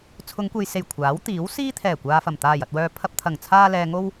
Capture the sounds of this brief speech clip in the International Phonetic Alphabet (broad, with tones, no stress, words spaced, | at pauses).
t͡sʰʊ˨˧ŋkʷe˨jse˨˩j kʷʰaː˨˥wt̪iː˨˥wsiː˥ t̪ʰɛː˨˩kʷaː˨fɐ˨˩m t̪aː˨˩jɐ˨t̚wœː˨ pʰɐ˧p̚t̪ʰɐ˨˩ŋ t͡sʰaː˧lɛː˨ŋo˧w